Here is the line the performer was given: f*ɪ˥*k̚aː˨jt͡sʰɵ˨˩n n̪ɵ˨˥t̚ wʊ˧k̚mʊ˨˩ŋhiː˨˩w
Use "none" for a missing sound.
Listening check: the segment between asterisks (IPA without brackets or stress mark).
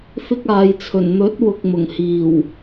ɪ˥